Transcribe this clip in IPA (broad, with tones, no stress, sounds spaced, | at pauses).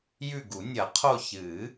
j ʉ˦˨ ɡ u˨˩˦ nʲ ɐ˨˩˦ qʰ o˦˨ ç ɨ˨˩˦